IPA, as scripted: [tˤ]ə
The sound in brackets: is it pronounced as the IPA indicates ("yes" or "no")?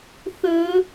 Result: no